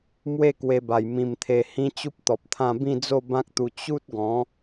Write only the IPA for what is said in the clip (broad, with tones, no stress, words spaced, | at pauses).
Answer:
mwe˥˧kwe˧ba˨˩j mĩ˧mt̪ʰe˧ hĩ˦t͡ɕu˦p̚t̪ɔ˨p̚t̪ʰã˥˧ bĩ˥˧ d͡zo˥˧bã˦k̚t̪u˧ t͡ɕu˦t̚ɡɔ̃˨˦